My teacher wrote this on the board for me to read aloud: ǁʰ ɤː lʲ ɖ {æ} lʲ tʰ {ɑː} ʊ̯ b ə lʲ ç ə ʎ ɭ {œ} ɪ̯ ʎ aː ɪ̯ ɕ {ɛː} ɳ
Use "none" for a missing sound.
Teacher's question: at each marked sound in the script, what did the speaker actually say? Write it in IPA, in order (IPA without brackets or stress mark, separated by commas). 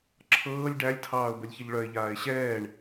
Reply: æ, ɑː, œ, ɛː